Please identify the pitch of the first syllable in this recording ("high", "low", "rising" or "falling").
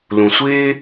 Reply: low